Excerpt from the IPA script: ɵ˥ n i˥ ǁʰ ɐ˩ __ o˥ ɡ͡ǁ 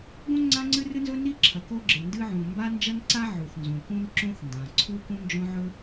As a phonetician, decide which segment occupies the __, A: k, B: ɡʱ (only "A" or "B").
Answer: A